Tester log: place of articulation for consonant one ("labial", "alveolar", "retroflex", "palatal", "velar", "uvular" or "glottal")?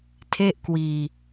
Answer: alveolar